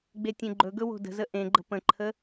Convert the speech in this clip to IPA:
ɡ͡betʲẽɡ͡ǃɵɡɵ wo̤də̤zə ʔẽɡ͡ǃə̤ pə̃ǃʰə

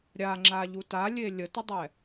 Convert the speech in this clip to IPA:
ɾʲaŋ͡ǁaʎu talʲe lʲətədˤɛ

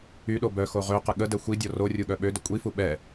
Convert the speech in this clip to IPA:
yɗo bœxo ʁøqə ɠədɛ xʷidʲɔ rorʲuɠœ ɓødə kʷʼifu ɓɛ

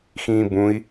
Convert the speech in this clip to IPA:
xĩːbũi̯

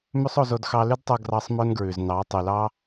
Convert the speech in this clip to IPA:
mʉ˦sˤo˧zo˧d xɑ˧lʉ˦dtˤo˧ ɡrɑ˧sˤ mœ˦nɡɹʉ˨z nɑ˨˦ tˤy˨lɑ˦

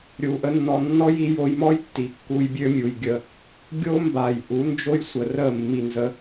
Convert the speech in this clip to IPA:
ɾʲu˨ʔə˦nːɔ˧ nːɔ˦ji˧jo˧jmɔ˦j tːi˨kːu˧jbʲø˦ mʲu˨jɡʲə˧ | ɡʲo˦mba˨j ʔu˨˦nd͡ʒo˦jsʷə˨ rə˦˨mːi˨ nzə˧

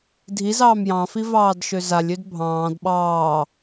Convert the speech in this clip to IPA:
dʱiz ɑːmjɑ̃fi vɑːdʃøzalʲød bʱɑ̃ːd ɓɑː

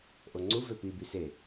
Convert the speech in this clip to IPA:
ʔoŋ͡ǀu vøpi byse

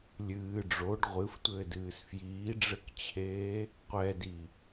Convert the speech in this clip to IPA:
lʲɨː ɖ͡ʐoɖ ʁʷɨftʷɘːdɨːs fjiːɖ͡ʐɘkt͡ɕʰeː | qʷɛdi

